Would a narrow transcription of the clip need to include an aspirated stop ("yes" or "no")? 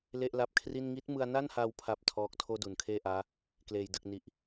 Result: yes